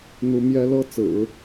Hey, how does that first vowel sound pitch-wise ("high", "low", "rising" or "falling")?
high